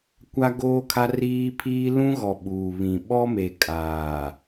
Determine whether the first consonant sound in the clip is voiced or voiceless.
voiceless